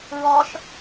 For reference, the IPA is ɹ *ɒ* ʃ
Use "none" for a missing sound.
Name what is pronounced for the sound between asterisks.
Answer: ɒ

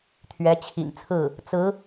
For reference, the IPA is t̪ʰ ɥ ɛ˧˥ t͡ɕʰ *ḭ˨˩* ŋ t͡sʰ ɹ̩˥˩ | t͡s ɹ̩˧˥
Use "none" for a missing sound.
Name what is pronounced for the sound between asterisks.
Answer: ḭ˨˩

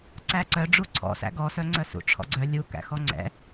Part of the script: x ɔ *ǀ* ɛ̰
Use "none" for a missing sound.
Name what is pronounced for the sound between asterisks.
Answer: ŋ͡ǀ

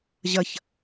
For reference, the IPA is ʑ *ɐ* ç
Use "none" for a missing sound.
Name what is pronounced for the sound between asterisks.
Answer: ɐ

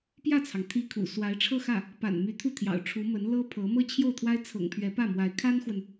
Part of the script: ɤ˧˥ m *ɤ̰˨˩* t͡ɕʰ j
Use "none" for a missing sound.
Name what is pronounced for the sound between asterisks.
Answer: ɤ˥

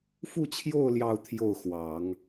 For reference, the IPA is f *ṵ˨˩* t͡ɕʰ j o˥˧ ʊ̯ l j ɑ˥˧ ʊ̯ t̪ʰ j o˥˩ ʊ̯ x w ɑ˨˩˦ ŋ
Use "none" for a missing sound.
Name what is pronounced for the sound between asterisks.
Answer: u˥˧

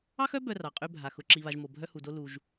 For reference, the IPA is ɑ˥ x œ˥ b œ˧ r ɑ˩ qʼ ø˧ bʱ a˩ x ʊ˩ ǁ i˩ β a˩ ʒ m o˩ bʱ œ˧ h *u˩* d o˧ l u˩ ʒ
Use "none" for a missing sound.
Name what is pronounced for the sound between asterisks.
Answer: u˩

